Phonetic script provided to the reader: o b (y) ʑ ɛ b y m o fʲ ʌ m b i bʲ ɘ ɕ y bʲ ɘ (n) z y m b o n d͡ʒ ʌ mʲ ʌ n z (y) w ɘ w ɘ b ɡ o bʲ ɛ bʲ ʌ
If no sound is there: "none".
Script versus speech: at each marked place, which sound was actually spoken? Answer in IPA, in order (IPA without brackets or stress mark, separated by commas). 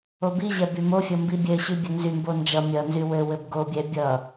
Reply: i, n, y